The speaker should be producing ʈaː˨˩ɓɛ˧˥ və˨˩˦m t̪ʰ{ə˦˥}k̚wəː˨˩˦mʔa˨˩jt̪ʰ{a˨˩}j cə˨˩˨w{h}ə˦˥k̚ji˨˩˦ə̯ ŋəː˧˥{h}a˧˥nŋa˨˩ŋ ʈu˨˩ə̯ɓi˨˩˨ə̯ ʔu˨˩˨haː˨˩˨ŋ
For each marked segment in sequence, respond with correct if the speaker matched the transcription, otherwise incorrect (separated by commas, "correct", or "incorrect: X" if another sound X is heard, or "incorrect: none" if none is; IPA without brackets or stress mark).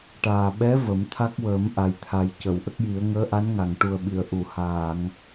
incorrect: a˦˥, correct, incorrect: ʔ, incorrect: ʔ